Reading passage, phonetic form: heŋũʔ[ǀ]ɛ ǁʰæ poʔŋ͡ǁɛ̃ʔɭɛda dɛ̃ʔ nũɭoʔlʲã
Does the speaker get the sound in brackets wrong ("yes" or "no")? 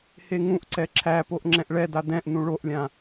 no